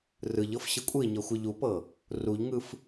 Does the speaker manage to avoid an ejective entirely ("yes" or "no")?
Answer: no